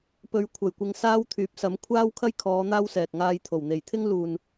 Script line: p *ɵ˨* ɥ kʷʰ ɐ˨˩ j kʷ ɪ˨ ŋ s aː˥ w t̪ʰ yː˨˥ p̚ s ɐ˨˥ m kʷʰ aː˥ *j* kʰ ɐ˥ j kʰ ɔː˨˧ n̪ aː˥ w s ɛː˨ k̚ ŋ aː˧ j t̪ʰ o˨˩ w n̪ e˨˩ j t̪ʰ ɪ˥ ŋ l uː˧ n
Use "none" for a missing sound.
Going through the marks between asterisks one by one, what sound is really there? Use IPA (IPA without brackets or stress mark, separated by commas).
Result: ɵ˨˧, w